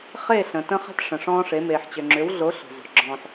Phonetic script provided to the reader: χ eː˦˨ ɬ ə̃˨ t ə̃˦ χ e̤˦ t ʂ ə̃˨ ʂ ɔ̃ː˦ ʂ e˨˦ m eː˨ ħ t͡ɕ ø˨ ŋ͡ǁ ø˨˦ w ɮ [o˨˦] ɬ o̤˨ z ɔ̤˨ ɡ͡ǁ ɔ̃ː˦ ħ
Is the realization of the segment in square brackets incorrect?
no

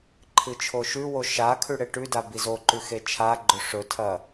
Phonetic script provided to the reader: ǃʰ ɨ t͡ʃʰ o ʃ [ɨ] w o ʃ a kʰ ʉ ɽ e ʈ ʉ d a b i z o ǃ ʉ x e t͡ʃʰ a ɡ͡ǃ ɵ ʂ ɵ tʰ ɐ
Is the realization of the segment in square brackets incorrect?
yes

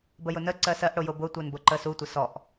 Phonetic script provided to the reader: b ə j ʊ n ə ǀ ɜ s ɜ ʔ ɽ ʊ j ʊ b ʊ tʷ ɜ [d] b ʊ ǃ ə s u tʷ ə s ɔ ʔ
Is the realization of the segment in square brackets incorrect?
yes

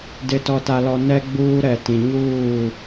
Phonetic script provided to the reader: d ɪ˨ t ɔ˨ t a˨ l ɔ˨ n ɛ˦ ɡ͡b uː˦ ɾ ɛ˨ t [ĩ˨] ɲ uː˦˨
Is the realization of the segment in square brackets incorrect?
no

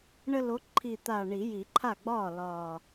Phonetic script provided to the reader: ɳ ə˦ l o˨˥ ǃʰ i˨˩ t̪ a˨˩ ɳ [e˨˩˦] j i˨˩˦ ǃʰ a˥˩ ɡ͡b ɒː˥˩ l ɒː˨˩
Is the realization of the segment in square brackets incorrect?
yes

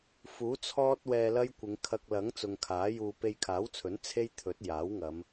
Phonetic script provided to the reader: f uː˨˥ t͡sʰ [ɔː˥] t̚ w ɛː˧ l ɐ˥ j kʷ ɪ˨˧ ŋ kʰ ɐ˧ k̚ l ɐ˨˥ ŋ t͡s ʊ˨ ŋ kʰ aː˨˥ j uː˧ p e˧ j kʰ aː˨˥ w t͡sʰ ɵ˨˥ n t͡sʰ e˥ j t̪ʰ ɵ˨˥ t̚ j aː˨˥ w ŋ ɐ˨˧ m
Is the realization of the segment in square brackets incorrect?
no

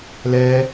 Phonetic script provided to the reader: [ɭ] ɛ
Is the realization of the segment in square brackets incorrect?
yes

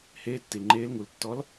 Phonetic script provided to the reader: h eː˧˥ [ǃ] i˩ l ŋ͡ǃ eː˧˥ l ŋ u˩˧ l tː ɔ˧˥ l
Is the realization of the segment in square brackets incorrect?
yes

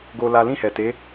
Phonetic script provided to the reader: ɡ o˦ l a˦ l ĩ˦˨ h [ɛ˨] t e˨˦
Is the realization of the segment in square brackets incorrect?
no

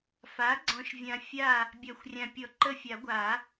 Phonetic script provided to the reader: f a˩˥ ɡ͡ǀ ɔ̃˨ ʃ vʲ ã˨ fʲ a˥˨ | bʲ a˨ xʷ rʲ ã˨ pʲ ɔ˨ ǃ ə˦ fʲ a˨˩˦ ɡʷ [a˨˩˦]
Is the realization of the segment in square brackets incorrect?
no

